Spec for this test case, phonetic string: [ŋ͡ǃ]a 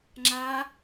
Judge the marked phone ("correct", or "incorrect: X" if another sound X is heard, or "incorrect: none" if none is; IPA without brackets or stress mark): incorrect: ŋ͡ǁ